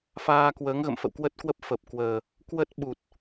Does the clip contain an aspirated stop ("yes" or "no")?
no